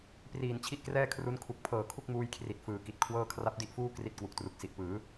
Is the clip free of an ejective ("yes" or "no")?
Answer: yes